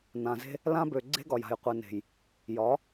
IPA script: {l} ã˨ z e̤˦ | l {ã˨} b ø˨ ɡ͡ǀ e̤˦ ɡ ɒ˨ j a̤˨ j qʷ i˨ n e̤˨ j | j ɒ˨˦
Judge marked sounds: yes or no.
no, no

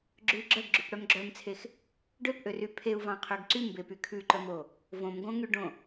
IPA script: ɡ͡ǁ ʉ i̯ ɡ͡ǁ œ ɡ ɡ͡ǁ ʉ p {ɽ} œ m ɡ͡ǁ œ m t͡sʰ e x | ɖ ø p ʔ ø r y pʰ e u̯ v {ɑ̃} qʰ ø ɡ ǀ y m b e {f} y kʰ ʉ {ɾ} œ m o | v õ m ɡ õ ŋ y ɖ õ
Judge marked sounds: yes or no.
yes, yes, no, no

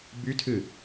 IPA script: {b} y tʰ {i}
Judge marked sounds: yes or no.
yes, no

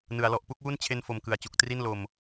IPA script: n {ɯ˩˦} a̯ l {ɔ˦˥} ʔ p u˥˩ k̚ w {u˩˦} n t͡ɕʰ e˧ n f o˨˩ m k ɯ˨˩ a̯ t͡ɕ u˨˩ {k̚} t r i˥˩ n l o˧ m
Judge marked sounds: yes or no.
yes, no, no, yes

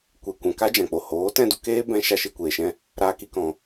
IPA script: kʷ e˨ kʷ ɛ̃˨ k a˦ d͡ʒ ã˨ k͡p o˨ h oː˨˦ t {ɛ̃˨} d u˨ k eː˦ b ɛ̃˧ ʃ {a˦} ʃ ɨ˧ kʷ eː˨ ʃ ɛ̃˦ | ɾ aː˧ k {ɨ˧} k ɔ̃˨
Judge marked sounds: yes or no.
no, yes, no

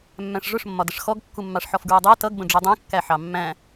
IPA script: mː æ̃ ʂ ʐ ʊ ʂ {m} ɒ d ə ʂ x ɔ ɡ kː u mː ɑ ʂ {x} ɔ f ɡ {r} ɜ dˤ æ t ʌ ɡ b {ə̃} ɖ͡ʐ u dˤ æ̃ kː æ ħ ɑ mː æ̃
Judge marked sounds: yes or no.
no, no, no, yes

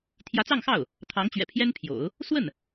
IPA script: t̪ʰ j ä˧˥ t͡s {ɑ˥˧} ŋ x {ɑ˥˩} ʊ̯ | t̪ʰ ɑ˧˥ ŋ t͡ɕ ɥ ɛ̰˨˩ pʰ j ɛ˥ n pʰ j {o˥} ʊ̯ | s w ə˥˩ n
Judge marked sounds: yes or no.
yes, yes, no

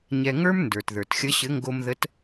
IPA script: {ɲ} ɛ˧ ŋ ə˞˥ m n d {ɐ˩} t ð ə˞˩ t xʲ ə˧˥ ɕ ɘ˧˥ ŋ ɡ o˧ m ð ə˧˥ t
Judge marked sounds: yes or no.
yes, no

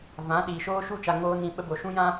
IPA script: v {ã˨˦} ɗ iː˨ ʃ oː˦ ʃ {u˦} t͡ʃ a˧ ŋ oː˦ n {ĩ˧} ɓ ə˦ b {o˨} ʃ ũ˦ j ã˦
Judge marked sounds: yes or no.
yes, yes, yes, yes

